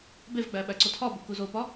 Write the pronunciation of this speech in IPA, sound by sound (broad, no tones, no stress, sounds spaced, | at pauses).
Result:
b e v ɡ͡b æ ɓ æ ǀ o tʰ ɒ b u k u z o p ɒ